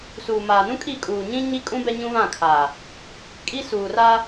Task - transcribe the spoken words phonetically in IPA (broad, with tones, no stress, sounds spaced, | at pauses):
s uː˨ m aː˨ n ũ˦ kʼ i˦˨ kʼ uː˨ ɲ ĩ˦ ɲ i˦ kʼ ũ˦ b ɛ˦ ɲ ũ˦ β ã˦˨ kʰ aː˨ | kʼ i˦ s uː˨ r aː˦